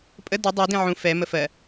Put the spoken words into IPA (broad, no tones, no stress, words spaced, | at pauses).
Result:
pʼə dɜ dˤɜdĩ ʕũ fɛmə fɜ